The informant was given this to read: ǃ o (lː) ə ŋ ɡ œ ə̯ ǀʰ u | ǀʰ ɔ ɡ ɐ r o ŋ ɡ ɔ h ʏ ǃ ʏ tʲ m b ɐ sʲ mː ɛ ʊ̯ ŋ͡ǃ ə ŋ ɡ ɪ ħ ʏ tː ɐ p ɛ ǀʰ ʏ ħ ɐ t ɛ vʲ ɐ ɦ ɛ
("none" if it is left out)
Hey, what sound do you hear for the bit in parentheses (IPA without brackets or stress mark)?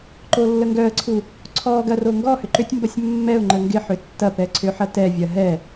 lː